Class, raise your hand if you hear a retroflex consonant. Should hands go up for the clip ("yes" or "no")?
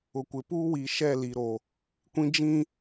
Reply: no